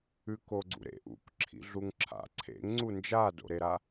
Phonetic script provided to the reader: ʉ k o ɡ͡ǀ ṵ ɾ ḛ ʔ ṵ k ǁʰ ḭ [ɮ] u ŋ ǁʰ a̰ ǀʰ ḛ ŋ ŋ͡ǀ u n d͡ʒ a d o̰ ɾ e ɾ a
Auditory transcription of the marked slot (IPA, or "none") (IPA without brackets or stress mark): ɮ